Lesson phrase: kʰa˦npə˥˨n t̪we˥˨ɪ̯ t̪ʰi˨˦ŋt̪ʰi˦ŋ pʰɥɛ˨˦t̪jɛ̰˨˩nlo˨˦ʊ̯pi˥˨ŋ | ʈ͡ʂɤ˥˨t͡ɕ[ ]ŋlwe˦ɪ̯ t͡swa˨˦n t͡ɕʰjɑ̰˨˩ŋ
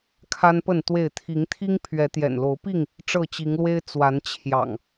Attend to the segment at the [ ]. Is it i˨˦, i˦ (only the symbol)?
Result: i˨˦